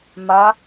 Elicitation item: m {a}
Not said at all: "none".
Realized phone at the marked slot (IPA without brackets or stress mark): a